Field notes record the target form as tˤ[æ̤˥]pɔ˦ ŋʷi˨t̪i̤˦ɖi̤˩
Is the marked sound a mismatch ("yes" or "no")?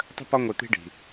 yes